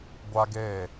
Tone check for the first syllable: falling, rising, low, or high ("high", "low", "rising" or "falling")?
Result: high